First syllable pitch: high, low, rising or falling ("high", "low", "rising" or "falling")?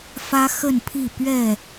high